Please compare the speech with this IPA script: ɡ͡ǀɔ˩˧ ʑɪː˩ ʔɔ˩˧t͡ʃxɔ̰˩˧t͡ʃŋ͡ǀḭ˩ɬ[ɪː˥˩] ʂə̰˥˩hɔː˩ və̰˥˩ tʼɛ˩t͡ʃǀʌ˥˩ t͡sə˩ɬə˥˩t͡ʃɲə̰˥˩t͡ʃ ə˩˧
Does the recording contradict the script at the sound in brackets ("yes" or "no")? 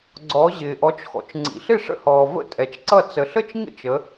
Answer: yes